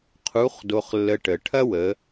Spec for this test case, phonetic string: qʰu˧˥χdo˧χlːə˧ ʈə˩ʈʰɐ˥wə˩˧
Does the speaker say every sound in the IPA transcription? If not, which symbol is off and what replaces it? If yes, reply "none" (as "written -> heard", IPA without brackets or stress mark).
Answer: none